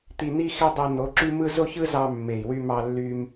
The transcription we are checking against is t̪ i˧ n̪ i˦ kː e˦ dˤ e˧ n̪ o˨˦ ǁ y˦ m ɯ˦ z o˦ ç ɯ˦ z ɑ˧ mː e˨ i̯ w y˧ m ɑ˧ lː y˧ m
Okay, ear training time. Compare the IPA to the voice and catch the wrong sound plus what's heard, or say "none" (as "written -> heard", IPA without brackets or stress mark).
kː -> x